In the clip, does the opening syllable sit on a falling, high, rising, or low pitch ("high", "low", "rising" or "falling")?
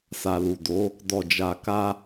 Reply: low